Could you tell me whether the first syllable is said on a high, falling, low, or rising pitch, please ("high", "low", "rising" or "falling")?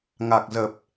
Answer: low